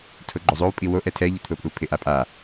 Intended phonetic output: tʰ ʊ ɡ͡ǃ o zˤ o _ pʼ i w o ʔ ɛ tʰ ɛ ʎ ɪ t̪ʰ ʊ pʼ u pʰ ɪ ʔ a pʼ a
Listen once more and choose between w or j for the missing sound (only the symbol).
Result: w